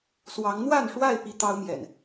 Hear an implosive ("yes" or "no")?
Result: no